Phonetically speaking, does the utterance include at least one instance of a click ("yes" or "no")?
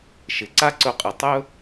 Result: yes